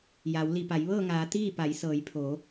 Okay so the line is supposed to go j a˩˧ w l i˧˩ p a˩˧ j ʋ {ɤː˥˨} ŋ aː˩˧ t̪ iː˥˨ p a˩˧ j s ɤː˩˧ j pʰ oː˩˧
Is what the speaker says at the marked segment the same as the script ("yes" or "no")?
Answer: yes